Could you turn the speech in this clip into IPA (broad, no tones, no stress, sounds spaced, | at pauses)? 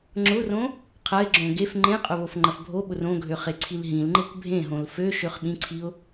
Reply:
ŋ͡ǁ ʊ r õ | qʰ ɐ ɪ̯ ɡ͡ǁ õ ɡ e f ŋ͡ǃ ẽ qʼ ʊ β o f ŋ͡ǃ ɐ f bʱ o ɓ ʊ r õ ɡʱ ø χ e ǀʰ i l ɦ ĩ l ŋ͡ǃ e kʷ bʱ ẽ ɦ õ l f ø ʃ ø χ ɓ ĩ ǀʰ i ʊ̯